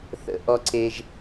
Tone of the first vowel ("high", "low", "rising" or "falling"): low